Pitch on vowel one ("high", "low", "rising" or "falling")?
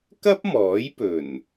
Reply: high